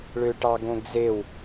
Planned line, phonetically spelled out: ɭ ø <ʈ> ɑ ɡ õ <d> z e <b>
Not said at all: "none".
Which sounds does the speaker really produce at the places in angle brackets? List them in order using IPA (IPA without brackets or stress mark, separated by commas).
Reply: ʈ, ɡ, w